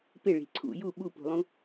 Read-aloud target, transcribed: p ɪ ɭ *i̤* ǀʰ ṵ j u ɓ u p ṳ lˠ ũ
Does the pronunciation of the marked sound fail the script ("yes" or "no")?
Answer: no